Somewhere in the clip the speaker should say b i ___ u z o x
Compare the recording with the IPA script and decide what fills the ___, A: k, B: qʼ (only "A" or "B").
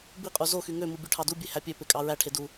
B